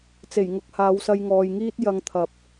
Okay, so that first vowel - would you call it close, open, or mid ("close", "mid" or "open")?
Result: mid